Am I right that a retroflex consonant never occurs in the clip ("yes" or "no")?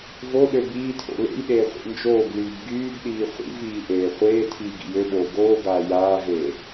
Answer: yes